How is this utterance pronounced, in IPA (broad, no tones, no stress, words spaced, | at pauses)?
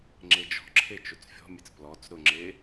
ŋ͡ǁed͡ʒɔ̤ǁʰe t͡ʃot͡sfʲɔ̤mʲet͡s plɔt͡s ɾʊŋ͡ǁe